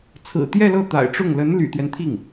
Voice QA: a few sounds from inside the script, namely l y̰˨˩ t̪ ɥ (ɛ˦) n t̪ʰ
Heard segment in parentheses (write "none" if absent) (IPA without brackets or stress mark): ɛ˦